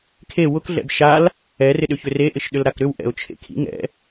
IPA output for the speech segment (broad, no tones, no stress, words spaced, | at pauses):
kʰe wʊk ɮɛ̰bʃal | ɛr ɪɗʏçʏre ʔɪʃɗʏlɾakɾʏw ʔɛ̰ʊ̯t͡ʃʰḛkʰḭ ŋɛ̰